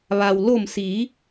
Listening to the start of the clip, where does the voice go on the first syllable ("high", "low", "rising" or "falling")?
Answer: low